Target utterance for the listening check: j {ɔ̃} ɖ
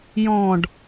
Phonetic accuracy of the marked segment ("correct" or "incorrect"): correct